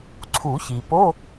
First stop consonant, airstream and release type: click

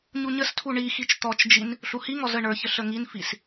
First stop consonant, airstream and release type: aspirated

